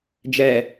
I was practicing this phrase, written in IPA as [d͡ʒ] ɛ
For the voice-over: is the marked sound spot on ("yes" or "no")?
yes